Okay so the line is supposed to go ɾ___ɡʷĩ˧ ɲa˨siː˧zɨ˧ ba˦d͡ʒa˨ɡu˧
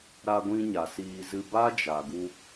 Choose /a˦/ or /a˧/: a˧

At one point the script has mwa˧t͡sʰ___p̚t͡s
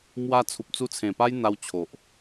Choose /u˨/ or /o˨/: u˨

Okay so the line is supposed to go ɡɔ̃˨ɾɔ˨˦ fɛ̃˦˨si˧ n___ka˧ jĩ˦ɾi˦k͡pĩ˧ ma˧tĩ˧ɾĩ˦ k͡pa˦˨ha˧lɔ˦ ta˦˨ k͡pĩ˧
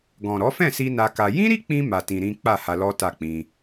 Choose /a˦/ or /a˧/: a˧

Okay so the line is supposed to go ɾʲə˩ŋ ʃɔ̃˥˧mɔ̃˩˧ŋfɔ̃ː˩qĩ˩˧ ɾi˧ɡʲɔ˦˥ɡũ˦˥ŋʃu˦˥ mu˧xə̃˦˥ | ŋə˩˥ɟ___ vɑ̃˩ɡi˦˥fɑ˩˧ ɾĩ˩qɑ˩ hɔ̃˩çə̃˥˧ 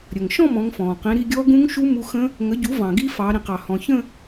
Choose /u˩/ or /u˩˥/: u˩˥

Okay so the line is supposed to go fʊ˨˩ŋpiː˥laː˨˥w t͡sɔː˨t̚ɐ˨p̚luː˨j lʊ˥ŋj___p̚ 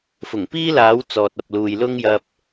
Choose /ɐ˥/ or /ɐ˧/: ɐ˧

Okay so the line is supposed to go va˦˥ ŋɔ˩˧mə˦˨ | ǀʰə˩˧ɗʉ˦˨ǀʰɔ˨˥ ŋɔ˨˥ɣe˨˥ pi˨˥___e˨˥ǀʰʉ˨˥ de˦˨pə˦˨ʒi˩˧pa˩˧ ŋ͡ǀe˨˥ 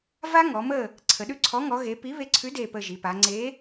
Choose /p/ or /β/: β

